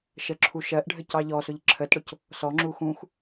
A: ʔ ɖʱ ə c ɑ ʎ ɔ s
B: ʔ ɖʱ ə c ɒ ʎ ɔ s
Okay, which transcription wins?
A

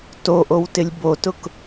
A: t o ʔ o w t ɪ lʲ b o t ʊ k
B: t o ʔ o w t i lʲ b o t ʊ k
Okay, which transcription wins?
A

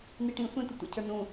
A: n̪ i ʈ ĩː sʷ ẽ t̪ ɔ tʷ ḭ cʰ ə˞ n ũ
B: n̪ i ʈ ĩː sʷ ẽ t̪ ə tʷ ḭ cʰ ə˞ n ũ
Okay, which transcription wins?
B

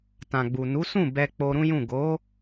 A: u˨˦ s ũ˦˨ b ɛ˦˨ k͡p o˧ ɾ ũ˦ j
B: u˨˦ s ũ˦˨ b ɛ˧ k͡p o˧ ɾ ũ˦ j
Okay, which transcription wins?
B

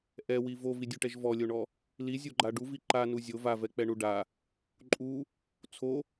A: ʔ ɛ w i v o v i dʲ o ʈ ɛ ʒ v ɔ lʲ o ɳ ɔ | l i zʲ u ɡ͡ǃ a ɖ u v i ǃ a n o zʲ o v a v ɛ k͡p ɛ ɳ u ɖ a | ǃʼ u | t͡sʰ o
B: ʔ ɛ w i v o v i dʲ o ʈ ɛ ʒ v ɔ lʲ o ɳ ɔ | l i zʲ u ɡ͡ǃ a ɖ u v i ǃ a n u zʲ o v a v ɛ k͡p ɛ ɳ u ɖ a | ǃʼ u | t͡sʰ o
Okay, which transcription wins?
B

